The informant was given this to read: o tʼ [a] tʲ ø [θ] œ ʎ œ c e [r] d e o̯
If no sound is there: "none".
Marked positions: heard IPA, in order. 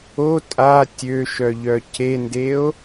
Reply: a, ʃ, n

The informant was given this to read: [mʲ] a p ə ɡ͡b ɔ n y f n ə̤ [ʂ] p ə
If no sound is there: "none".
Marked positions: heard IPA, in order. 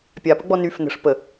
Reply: pʲ, ʂ

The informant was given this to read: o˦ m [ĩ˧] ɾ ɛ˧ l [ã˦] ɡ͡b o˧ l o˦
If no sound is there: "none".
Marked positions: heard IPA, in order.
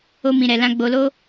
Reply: ĩ˧, ã˦

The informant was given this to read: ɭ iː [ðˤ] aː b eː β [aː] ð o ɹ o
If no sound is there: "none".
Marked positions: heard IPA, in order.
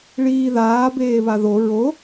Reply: ð, a

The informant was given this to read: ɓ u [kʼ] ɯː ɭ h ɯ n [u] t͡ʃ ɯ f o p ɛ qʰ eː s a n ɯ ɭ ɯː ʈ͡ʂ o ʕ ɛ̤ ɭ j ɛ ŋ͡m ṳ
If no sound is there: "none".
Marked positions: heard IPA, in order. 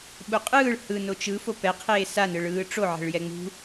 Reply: qʼ, o

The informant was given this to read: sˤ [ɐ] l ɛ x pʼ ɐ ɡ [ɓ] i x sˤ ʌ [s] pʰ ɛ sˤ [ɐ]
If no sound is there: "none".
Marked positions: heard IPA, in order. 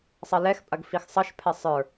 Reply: ɐ, f, ʃ, ə˞

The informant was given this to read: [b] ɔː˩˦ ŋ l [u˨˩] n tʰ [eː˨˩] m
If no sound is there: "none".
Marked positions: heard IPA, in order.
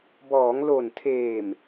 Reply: b, o˨˩, eː˨˩

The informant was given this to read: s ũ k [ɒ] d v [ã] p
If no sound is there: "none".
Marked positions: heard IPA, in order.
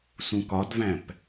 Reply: ɒ, æ̃

